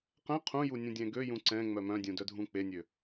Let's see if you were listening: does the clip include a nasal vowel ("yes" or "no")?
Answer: yes